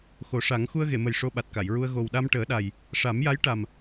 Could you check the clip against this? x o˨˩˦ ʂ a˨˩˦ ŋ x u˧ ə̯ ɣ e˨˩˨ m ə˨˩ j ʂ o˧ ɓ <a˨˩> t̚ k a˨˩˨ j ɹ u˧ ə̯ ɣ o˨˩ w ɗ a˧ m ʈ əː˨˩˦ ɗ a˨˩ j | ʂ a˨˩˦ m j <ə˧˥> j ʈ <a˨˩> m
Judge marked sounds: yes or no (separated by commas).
yes, no, yes